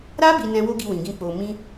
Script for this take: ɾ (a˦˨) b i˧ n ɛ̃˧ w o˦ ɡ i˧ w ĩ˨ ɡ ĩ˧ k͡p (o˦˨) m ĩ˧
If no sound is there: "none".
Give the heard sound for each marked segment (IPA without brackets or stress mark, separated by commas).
a˦, o˨